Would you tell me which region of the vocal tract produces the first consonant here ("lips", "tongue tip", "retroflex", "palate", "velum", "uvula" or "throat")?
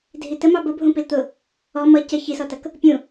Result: tongue tip